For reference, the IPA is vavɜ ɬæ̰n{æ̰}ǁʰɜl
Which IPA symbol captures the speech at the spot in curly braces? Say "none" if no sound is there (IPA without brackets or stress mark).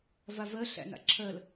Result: a̰